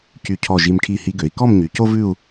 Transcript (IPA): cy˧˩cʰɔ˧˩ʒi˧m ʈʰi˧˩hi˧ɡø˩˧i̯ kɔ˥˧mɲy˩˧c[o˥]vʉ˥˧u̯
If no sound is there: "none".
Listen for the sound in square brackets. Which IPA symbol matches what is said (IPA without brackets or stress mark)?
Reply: o˥